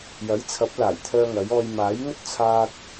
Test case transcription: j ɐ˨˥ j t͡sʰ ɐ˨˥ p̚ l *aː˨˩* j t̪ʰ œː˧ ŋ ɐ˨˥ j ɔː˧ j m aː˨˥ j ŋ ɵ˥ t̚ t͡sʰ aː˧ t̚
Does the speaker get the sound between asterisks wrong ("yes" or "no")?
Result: no